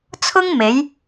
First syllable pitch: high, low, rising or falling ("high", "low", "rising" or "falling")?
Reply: high